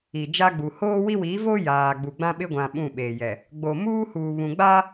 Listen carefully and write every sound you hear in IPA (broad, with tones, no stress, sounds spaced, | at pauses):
i˨ d͡ʒ a˦ ɡ͡b u˨ h oː˦ w i˦ w iː˨˦ v oː˦ j aː˨ ɡ͡b u˨ ɡ͡b ã˦ ɓ ɪ˦ ɡʷ ã˨ ɓ ũ˦˨ ɓ eː˨ j ɛ˨ | ɡ͡b o˨ m uː˦ h uː˨ β ũ˨ ɡ͡b a˦